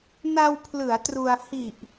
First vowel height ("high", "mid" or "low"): low